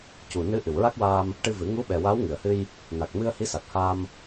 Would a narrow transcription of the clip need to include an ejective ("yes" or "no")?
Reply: no